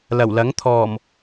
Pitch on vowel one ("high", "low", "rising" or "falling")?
low